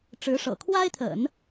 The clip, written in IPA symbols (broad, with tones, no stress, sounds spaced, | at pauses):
ʈ͡ʂ ɻ̩˧˥ ʂ ɤ̰˨˩ kʰ w a˥ ɪ̯ t̪ʰ ə̰˨˩˦ n